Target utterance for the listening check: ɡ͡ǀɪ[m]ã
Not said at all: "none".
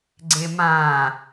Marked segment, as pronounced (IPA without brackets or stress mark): m